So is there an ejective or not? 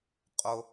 yes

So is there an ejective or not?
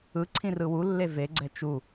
no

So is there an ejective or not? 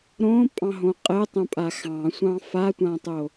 yes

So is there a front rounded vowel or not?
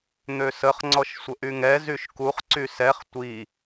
yes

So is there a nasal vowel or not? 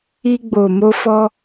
no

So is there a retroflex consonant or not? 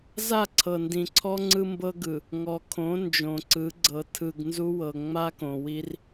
no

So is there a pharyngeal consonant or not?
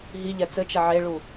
yes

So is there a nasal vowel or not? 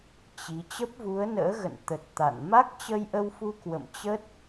no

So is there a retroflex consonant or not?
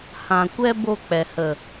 no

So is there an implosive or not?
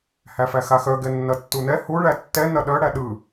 yes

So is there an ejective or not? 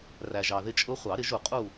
yes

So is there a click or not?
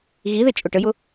no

